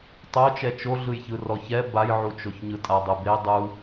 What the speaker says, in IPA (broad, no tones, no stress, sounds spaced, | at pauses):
tˤ o t͡ʃ ɛ t͡ʃ o ɮ ɯ j ç ɯ r ɔ ç ɛ b a j ʕ u t͡ʃ o ç ɲ ɯ tʼ a dˤ ɯ b e dˤ u